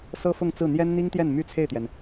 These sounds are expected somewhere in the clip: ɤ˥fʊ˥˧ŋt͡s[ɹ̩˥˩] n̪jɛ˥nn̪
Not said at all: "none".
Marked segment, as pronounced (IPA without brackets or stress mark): ɹ̩˥˩